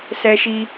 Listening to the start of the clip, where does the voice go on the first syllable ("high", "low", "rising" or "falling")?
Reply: high